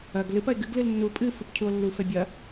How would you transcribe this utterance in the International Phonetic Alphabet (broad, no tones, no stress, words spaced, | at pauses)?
ɐɡ lɨpɐe̯ ɡɨɡlɨl nːu pʼɨ fɨpcʰuo̯lːufɛ bʲɐ